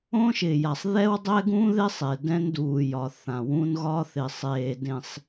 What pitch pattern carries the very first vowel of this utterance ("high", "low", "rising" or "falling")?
high